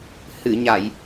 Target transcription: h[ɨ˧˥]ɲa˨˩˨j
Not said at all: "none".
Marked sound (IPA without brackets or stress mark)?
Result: ɨ˨˩˨